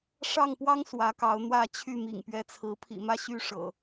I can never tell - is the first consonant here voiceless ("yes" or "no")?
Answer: yes